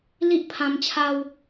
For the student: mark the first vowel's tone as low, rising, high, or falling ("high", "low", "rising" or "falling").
high